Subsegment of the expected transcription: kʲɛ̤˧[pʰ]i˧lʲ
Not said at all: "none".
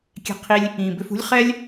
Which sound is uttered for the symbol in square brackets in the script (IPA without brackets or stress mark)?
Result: qʰ